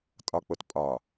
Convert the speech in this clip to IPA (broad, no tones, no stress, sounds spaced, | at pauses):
tʼ ɒ k͡p o t pʼ ɒ